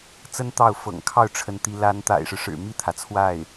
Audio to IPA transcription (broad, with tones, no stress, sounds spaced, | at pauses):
t͡s ə˥ n t̪ ɑ˥˩ ʊ̯ f ɤ̰˨˩ ŋ kʰ ɑ˥˩ ʊ̯ ʈ͡ʂʰ ə˧˥ n t̪ i˧˥ l a˧˥ n t̪ a̰˨˩ ɪ̯ ʂ ɻ̩˦ ʂ ɻ̩˨˩ m i˥˩ t̪ʰ ä˩ t͡sʰ w a˥˩ ɪ̯